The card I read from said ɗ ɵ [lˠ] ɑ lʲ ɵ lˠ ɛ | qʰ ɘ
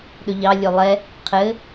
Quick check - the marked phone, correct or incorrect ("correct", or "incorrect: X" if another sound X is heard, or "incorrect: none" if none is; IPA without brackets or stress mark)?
incorrect: ʎ